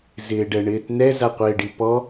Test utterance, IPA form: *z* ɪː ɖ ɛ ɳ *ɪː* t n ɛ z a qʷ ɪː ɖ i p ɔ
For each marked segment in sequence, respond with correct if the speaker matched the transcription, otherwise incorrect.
correct, correct

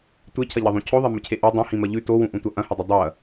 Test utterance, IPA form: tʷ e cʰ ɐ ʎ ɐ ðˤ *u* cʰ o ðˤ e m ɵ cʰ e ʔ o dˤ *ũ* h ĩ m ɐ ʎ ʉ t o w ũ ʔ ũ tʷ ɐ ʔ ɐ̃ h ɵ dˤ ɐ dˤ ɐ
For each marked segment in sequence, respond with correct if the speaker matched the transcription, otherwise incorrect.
incorrect: ũ, correct

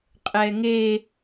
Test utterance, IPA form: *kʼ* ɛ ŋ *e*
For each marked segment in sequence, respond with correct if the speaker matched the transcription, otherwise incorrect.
incorrect: qʼ, correct

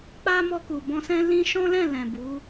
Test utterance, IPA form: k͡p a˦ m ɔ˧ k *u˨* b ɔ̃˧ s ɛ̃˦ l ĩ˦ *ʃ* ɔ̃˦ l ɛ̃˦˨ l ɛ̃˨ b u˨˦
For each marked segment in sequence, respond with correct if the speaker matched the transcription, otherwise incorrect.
correct, correct

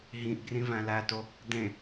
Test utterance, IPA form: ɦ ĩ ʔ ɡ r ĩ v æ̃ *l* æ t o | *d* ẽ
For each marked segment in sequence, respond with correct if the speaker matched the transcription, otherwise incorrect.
correct, correct

